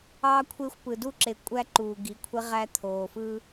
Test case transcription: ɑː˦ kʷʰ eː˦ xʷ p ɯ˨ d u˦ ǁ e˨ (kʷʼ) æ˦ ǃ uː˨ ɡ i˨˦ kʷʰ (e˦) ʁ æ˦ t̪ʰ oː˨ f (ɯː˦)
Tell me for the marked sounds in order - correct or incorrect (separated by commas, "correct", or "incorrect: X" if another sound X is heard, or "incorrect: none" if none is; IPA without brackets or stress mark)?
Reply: correct, correct, correct